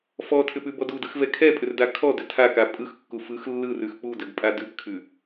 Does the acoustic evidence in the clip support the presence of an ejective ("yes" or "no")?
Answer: yes